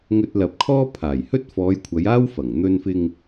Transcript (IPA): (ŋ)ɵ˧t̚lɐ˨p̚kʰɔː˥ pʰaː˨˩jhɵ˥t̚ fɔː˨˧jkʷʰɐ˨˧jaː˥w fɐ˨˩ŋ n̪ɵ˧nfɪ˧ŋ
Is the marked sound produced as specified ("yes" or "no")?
yes